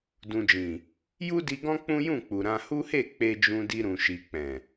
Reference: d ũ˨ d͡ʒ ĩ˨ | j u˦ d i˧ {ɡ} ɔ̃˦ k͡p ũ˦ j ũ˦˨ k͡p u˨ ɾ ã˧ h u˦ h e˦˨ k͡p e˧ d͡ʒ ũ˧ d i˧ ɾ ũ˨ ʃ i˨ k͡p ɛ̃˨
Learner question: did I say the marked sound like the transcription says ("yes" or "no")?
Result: yes